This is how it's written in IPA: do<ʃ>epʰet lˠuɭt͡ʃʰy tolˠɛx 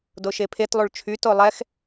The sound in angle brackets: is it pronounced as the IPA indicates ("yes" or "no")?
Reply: yes